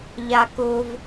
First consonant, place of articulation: palatal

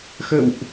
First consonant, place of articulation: velar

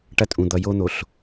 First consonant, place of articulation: retroflex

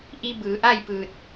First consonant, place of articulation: glottal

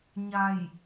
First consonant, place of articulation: palatal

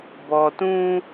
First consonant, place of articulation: labial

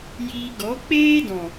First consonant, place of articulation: palatal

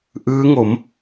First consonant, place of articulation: glottal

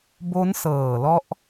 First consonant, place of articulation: labial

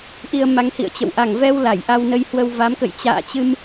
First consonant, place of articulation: glottal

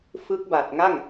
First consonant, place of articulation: labial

